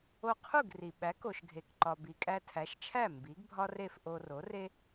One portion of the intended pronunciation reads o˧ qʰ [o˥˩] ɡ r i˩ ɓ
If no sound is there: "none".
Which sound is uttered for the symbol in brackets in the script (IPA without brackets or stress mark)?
u˥˩